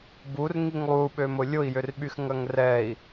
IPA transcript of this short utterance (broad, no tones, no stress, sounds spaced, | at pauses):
b u r ŋ i ŋ lˠ u ɓ ø m ʊ lʲ ʊ i̯ j ʏ r ɓ y x ŋ ɐ ŋ r ɛ i̯